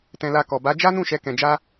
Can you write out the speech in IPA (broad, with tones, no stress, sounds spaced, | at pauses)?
t ɛ̃˧ l a˧ k ɔ˨ b a˨˦ d͡ʒ a˦ n ũ˦˨ ʃ ɛ˨˦ k ɛ̃˧ d͡ʒ a˦